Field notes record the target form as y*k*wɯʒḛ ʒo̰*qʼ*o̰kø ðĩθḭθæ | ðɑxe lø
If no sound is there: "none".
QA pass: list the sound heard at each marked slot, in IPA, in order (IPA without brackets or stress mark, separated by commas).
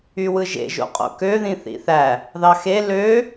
none, qʼ